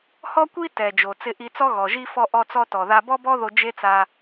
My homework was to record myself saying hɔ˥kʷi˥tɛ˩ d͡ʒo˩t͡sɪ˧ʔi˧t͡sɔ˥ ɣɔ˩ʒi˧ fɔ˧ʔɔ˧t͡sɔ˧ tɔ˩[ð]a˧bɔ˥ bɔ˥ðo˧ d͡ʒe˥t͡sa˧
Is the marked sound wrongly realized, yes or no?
no